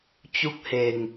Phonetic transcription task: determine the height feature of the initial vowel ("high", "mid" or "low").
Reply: high